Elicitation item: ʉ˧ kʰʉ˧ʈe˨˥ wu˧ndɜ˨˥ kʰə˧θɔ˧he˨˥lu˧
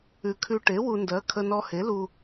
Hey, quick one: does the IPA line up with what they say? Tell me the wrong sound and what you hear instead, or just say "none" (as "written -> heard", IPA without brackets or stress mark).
θ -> n